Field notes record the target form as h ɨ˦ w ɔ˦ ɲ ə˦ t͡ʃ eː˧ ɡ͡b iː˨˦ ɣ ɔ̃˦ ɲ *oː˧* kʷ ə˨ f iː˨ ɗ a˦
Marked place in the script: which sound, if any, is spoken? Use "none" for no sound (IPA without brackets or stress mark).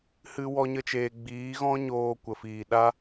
oː˧